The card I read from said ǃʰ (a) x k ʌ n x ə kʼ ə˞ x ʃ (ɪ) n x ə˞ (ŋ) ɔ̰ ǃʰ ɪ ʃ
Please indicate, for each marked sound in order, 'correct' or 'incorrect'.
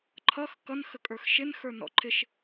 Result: incorrect: ʌ, correct, incorrect: n

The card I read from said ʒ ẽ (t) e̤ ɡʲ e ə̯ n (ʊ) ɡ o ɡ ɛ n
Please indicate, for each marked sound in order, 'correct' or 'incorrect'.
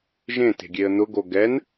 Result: correct, correct

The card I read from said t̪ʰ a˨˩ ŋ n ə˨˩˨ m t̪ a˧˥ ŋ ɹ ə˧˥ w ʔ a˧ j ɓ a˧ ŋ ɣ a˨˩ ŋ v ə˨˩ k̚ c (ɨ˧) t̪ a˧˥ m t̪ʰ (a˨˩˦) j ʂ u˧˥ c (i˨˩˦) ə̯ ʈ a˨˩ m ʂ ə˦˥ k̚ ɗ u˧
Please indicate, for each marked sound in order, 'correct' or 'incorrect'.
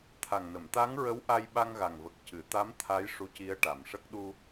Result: incorrect: ɨ˨˩˨, incorrect: a˧˥, incorrect: i˧˥

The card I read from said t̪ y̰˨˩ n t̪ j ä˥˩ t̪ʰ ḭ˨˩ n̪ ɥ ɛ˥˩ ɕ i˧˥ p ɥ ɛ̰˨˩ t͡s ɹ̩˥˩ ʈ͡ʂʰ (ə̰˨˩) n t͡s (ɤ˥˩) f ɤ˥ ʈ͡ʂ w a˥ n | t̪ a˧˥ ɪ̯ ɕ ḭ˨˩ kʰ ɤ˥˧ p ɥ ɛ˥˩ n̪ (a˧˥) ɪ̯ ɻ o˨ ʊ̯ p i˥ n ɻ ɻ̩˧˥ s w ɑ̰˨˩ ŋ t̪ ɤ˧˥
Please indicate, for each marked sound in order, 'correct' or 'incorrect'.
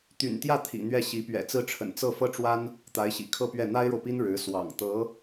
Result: correct, correct, incorrect: a˥

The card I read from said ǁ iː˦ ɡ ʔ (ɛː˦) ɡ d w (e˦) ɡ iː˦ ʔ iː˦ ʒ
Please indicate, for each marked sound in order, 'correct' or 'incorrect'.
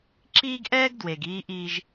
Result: correct, incorrect: e˨

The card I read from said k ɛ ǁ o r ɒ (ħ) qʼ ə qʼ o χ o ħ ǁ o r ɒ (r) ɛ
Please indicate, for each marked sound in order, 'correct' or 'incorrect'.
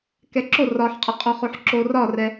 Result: correct, correct

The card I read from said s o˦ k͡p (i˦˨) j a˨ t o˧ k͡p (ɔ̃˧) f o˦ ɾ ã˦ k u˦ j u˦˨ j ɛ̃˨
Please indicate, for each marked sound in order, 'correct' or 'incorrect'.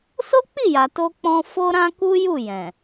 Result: correct, correct

